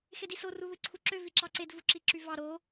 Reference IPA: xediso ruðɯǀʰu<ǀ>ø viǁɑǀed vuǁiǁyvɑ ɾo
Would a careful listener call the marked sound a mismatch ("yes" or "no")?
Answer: yes